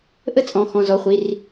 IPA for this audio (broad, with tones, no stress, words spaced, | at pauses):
ʔə˥˧t͡sʼɔ̃˩˧˩ xɔ̃˩˧˩zɔ˩˧˩χʷi˩˧˩r